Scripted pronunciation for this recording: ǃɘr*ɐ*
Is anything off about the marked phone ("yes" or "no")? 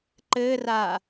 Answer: yes